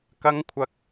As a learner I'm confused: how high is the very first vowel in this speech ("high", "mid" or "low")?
low